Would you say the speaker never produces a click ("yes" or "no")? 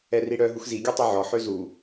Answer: yes